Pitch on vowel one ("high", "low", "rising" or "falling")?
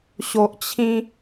low